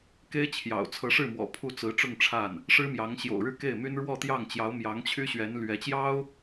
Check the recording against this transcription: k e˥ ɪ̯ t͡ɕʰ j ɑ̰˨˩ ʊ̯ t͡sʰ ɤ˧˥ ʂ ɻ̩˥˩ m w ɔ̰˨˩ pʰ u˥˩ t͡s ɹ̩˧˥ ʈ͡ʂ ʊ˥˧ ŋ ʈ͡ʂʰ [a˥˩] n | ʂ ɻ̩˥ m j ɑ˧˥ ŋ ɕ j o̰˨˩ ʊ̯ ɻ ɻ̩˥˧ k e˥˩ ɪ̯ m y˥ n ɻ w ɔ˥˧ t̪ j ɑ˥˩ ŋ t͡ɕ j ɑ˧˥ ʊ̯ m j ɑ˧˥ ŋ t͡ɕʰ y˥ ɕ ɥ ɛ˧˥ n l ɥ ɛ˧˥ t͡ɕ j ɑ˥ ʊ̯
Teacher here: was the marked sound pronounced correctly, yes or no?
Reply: yes